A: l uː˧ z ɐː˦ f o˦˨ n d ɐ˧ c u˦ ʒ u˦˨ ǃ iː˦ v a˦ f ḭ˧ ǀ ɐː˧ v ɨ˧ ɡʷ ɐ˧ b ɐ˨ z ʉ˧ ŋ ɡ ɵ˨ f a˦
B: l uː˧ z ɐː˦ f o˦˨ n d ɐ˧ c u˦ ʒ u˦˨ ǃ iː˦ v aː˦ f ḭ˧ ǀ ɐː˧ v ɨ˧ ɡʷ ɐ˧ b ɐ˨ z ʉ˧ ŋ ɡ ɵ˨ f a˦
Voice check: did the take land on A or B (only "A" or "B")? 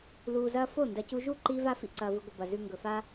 A